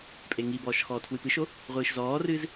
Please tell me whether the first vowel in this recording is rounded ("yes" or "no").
no